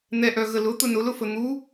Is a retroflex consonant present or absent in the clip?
absent